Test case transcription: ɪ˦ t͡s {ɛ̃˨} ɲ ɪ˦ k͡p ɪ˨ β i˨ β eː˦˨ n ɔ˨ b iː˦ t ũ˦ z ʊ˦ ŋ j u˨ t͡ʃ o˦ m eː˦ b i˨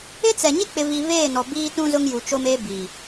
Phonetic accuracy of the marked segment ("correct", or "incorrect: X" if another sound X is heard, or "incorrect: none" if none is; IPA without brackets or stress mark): incorrect: ɛ˨